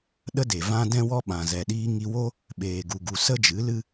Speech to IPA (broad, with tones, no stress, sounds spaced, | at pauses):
ɗ ə˦ d e˨ v ã˦ d ɛ̃˦ w ɔ˦ ɓ ã˨ z ɛ˨ ɗ iː˧ ŋ i˧ w o˦ | ɓ eː˨ ɡ u˨ ɡ u˨ s ə˦ d͡ʒ ɨ˨˦ l ɨ˦